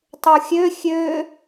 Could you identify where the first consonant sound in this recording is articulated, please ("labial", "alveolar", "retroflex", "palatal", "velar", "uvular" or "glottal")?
alveolar